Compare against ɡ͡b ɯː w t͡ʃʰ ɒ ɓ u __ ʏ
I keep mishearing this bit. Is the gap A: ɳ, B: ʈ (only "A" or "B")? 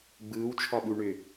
A